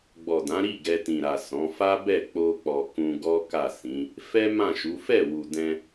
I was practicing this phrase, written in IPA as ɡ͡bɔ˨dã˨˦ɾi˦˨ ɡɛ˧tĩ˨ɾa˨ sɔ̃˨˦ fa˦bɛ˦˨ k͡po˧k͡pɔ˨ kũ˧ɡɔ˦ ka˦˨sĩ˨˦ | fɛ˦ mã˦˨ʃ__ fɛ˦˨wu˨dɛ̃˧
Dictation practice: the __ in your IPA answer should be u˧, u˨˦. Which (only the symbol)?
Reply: u˨˦